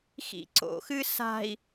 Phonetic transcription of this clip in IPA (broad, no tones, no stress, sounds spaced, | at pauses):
x ḭ ǀ o̰ x ɨ s a̤ i̯